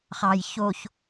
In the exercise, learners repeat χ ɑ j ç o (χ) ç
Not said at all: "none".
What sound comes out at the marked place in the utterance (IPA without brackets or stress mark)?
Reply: none